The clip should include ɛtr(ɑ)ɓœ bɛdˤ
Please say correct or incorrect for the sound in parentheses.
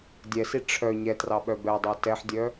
correct